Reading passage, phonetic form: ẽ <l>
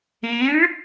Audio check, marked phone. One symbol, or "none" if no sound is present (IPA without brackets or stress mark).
ɭ